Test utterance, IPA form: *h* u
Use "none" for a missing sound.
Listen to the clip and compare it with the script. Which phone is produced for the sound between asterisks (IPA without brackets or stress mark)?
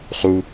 χ